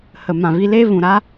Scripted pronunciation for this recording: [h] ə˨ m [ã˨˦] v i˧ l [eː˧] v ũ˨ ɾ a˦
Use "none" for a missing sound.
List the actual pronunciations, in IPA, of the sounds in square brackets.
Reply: h, ã˨, eː˦

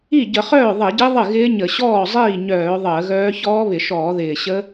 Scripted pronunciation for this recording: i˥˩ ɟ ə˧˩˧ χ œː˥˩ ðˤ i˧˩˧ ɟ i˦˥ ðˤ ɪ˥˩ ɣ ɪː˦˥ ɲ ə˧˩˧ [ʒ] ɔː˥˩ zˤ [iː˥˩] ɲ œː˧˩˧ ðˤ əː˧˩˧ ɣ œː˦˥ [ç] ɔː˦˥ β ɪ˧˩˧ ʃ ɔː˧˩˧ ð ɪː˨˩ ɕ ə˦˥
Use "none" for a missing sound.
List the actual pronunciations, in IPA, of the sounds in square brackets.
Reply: ɕ, iː˥˩, ç

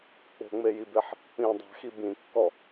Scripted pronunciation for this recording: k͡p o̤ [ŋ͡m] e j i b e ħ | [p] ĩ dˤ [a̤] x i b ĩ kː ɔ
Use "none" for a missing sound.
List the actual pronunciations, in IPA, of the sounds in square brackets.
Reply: ŋ͡m, p, a̤

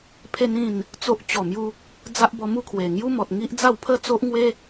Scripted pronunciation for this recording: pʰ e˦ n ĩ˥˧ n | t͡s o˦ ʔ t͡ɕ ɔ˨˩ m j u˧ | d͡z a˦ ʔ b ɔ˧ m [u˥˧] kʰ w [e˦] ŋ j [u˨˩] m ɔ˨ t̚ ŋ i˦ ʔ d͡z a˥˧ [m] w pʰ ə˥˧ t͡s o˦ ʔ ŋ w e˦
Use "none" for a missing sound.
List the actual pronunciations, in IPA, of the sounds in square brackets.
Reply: u˥˧, e˨˩, u˦, none

